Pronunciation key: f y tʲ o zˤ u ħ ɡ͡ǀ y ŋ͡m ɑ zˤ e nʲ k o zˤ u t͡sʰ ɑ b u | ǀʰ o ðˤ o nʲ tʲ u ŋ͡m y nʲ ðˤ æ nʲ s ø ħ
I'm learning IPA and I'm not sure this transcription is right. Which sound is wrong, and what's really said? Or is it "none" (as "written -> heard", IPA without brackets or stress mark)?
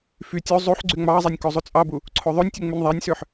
t͡sʰ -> t͡sʼ